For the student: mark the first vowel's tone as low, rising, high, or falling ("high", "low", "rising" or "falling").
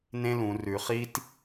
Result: high